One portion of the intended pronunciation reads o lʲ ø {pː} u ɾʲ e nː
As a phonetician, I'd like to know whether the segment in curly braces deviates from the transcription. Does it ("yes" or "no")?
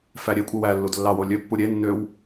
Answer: no